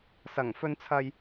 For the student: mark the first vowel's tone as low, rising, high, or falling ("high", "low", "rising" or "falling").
low